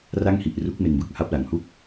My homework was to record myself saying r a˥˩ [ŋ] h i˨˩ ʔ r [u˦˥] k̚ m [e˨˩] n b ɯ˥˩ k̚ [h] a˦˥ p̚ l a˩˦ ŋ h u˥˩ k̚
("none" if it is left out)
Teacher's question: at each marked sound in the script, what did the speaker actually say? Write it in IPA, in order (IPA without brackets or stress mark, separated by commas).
ŋ, u˦˥, e˧, h